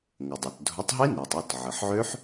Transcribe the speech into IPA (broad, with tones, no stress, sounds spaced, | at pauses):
ŋ ə˩ dˤ ø˩ t dʱ ʊ˨˥ tˤ ɦ i˦˥ n e˩ tˤ ʊ˩˧˩ t ʕ ə˩ ħ ʕ ø˦˥ ħ